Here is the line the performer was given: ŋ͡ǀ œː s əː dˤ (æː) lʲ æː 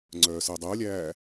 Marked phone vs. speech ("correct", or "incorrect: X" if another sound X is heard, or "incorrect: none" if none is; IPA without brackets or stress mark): incorrect: əː